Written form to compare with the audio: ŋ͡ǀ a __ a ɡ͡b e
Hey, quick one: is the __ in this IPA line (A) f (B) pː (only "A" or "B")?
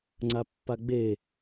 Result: B